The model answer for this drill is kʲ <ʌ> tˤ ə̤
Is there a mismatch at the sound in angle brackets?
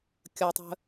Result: no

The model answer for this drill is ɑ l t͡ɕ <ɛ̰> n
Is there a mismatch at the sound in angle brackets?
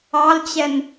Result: yes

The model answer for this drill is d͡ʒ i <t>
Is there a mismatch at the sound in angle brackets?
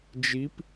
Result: yes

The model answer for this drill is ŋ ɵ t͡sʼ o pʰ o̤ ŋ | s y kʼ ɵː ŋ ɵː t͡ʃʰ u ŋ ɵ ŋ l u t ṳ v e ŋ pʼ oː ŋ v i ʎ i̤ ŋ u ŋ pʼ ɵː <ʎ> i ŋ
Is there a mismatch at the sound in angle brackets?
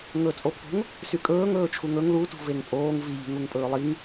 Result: yes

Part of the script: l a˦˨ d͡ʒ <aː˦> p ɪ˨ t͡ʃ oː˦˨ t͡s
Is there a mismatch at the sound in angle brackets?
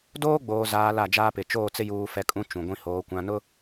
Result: no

